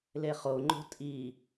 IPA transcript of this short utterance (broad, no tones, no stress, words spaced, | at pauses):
leχo ŋ͡ǃo̤tʼi